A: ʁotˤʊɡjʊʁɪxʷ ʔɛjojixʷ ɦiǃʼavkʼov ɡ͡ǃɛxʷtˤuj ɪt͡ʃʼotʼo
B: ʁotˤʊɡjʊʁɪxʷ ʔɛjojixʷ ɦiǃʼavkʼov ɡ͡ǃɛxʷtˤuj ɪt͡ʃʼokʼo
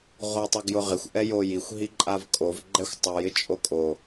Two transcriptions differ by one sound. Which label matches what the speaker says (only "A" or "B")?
B